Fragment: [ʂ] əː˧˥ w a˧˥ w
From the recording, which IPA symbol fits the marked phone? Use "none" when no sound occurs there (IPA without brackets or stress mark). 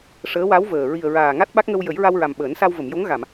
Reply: ʂ